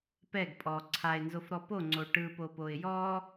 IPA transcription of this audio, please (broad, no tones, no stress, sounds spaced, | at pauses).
p ɛ ɡ pʼ ɔ ǀʰ a ɪ̯ n z o f ɾ ɔ p o ŋ͡ǀ o ʈ ɯ p o p o ɪ̯ j ɔ